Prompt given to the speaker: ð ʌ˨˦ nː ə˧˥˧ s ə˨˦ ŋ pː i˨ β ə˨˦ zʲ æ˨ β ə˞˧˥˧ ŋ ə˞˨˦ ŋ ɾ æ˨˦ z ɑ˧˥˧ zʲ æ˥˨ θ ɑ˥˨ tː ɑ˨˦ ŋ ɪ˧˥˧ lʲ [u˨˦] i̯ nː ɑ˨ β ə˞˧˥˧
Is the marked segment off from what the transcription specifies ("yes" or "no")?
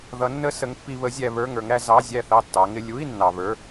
yes